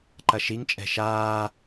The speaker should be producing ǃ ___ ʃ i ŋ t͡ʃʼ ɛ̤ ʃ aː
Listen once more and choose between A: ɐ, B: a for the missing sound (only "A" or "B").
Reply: A